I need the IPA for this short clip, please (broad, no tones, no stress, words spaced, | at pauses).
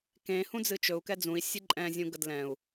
kẽ hũd͡zɨt͡ʃɵu̯ kɛd͡zũi̯ sʲɨǃʼɛ̃ zʲũɡədlɛ̃u̯